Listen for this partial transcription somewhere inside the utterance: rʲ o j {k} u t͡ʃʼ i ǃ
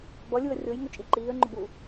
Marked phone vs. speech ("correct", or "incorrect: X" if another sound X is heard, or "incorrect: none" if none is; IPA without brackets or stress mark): incorrect: ŋ